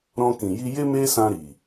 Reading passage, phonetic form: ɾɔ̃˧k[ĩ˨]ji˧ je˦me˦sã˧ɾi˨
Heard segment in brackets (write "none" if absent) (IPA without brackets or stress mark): ĩ˨